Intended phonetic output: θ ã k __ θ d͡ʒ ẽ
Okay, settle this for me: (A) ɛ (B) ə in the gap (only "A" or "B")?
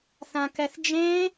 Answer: A